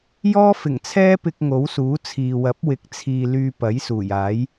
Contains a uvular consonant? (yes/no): no